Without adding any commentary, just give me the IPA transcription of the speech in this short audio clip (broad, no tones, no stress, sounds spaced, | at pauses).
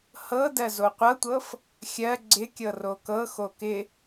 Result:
h ɤ d ɜ z o qʷ ɤ tʷ ɤ f | xʲ ɜ ɡ͡ǀ ɪ kʲ ɤ r o k ɤ x o k ɪ